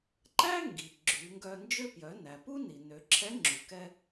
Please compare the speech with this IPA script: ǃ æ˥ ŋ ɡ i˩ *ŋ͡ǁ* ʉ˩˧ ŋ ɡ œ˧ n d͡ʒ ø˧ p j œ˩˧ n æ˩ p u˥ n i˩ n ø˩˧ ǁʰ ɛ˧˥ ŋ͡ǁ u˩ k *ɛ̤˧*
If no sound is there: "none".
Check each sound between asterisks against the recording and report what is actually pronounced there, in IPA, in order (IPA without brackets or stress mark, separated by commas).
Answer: ɡ͡ǁ, ɛ˧